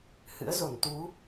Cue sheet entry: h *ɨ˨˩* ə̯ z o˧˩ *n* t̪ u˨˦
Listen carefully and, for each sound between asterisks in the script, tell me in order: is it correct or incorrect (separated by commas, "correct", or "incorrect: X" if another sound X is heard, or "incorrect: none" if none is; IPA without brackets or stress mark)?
incorrect: ɨ̰˧˥, correct